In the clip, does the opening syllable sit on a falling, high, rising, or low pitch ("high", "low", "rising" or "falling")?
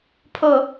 low